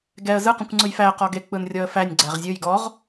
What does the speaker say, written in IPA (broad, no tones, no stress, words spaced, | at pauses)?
ɡɛə̯ zɯ qũkʷŋ͡ǀɯjfæ qɔɡe k͡pɯnrʲɔə̯fænʲ ɡ͡ǀæʁzʲɯj ɡɔʁ